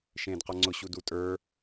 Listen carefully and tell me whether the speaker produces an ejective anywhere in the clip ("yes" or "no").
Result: yes